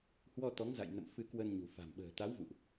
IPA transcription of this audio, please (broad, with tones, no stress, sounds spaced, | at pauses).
h w ɔ˧ t̪ ɔ˨˦ ŋ z a̰˧˨ j n ə̰˧˨ m f ɨ˧ k w ə˧ n ɲ ṳ˨˩ f a̤˨˩ m ɓ ə̤ː˨˩ t̪ a˨˦ w v ṵ˧˨ ʔ